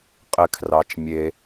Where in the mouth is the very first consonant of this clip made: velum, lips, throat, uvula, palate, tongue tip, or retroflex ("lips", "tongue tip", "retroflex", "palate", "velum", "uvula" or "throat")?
uvula